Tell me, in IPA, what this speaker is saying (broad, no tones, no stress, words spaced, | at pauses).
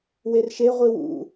werʃe ʁʷiwṵ